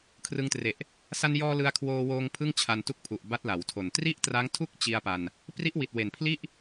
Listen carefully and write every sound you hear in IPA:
kʰrɯ˧ŋtre˨˩ʔ | sa˧njɔː˧ lɯ˧a̯kʰwoː˧woː˧ŋ pʰɯ˥˩ŋt͡ɕʰa˧ntu˥˩k̚pʰu˨˩ʔ ba˦˥t̚la˩˦wtʰo˨˩n tri˥˩ʔtra˦˥ŋtʰu˥˩k̚ t͡ɕi˧a̯pa˧n | pri˦˥ʔwi˨˩t̚we˨˩npʰli˥˩ʔ

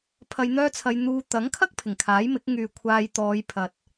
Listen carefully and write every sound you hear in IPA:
pʰɐ˧jn̪œː˥t͡sʰɐ˧jn̪uː˧ t̪ɐ˨˥ŋkʰɐ˥k̚ pʰɪ˨˩ŋkʰaː˨˥jmɪ˨˥k̚ ŋyː˨kʷʰaː˧j t̪ɔː˨˧jpʰɐ˨t̚

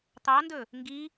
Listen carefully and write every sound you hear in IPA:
t̪ɑndɵ | ŋɡi

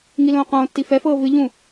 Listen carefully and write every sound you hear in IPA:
ŋilõːqõːtːi fɛfɤː vɨʎũ

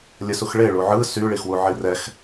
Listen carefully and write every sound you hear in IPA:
lʲəsuxɭe ɭuʕɯ sy ɭixwuʕirɛx

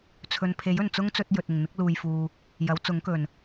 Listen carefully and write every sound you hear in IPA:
t͡sʰɵ˨npʰe˨˥jɵ˨˩n t͡sʊ˥ŋt͡sɵ˧t̚ jɵ˨t̚ɪ˨˩ŋn̪ɪ˥k̚ luː˨jfuː˨ | jɐ˨˥wt͡sʊ˨˥ŋkɵ˨˩n

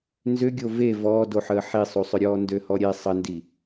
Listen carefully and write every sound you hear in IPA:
nzʏɡʲo ve vɔːdoħəː ħisˤusˤʏɾʲɔː ndøhɔɾʲe sˤəndi

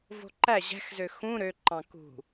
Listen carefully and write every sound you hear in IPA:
vo̤ǃæ ʑæ̤xzø xũ ɾø ǃɑ̃kṳ

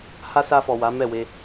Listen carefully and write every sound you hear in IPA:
ha˦sa˧fɔ˨ wa˨˦ mɛ˦˨we˧

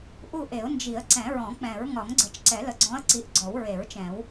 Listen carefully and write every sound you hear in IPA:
ʔu˦˨ʔe˨˩˦ʊ̯nd͡ʒi˨˩˦ə̯ ǀɛ̃˨˩˦ɹɔ̃˨˩˦k͡pɛ̃˨˩˦ɹ ŋɒ˨˩˦ŋɡ͡ǀə˨˩˦t͡ʃǀɛ˨˩˦lə˨ ɡ͡ǀɔ̃˨˦ə̯ ǀi˨˦ʔɡ͡ǀɔ˨˩˦wɹe˨˩˦ɹ t͡ʃɛ̃˨˩˦w

